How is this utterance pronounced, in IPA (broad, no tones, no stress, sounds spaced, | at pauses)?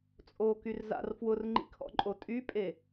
t͡sʼ o k y r z a̰ r f w ʊ r ŋ͡ǃ ḭ kʰ ɔ̰ ǃʼ o tʼ y pʼ e